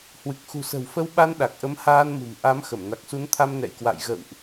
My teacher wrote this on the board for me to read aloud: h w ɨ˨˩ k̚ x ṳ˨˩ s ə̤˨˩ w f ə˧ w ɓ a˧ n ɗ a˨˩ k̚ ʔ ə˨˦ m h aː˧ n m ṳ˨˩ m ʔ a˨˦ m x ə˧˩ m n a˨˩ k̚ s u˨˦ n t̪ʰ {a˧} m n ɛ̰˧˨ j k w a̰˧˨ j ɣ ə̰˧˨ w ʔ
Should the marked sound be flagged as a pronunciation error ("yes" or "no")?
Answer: no